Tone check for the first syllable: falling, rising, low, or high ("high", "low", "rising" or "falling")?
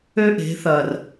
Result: high